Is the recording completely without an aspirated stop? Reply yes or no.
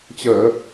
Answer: yes